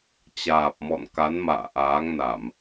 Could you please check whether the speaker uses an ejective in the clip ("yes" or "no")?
no